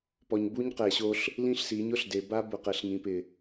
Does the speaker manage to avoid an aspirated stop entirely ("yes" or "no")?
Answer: yes